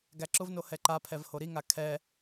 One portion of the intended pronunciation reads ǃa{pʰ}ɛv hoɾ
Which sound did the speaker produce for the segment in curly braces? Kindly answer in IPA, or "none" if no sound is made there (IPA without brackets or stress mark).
pʰ